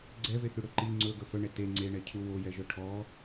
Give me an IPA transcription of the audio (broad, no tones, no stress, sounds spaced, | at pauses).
ɡ͡ǀ ɛ v e θ ʉ ɽ ɵ ǃ i ŋ͡ǀ ɵ ɡ ɵ f œ ɳ ɛ t e ŋ͡ǀ e ɳ ɛ cʰ u w o j ɛ ʒ œ ʈʰ ɔ